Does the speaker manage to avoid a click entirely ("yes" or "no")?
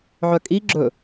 no